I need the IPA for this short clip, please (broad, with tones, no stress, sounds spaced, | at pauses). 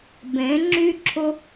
b ẽ˨˦ ŋ͡ǁ y˦ ǁʰ ʊ˦